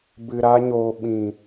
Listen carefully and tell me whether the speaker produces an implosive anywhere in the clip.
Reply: yes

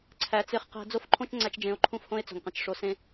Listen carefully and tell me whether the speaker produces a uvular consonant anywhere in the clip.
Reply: yes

